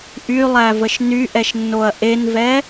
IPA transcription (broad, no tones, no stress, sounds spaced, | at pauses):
ʔ y lˠ æ v ə ʃ n y ʔ ɛ ʃ nː o ɐ̯ ʔ e n v ɛ